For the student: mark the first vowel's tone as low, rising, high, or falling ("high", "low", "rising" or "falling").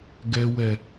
low